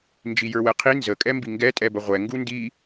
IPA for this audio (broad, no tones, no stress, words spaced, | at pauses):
nd͡ʒijə˞wɛqʰi nzə kʼɛmbiŋɡɛ tʼɛbəʁʷɛ ŋɡundi